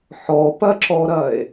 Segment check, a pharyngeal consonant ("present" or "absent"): present